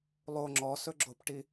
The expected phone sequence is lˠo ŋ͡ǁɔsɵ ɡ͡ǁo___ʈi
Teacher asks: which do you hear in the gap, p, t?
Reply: p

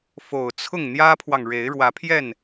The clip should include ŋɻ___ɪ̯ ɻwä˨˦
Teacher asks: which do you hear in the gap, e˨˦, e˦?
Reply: e˨˦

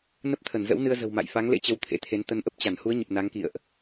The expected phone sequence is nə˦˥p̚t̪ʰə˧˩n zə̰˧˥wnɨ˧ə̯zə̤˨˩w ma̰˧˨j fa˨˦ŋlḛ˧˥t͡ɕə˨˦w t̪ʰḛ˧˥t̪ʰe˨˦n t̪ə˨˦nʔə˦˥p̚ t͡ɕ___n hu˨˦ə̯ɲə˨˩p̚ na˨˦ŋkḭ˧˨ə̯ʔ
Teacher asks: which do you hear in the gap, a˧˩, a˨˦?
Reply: a˧˩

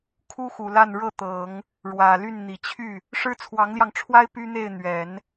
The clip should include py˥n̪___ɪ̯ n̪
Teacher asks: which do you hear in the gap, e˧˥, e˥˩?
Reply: e˥˩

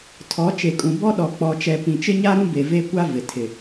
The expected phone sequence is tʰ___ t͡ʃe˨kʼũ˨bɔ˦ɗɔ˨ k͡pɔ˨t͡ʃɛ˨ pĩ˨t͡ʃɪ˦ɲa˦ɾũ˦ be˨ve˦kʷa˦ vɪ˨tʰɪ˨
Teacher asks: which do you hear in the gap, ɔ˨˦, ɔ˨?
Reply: ɔ˨˦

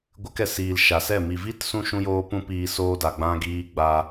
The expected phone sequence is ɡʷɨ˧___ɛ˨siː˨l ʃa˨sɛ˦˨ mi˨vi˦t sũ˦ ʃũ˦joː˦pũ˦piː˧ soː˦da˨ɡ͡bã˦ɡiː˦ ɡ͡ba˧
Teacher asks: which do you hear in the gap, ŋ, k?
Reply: k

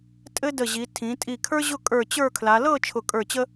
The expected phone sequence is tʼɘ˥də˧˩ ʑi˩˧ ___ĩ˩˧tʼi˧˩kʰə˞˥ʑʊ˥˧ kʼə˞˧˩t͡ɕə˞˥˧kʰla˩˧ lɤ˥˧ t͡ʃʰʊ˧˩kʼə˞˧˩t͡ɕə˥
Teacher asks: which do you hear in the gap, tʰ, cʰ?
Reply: tʰ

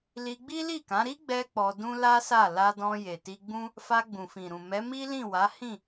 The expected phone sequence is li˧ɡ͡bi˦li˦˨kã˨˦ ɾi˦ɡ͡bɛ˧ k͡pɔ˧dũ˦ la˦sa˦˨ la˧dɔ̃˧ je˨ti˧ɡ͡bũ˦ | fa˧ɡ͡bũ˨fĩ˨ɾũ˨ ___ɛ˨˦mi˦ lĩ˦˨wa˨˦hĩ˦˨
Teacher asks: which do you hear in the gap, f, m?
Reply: m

